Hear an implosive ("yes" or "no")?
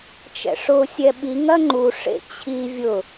yes